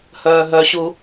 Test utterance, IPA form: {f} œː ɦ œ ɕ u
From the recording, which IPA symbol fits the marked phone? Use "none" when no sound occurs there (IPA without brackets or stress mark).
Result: h